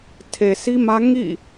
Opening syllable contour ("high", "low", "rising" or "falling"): low